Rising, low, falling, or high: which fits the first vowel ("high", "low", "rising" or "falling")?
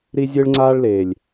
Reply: high